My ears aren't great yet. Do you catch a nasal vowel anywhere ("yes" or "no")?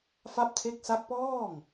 no